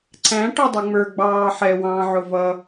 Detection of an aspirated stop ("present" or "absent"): absent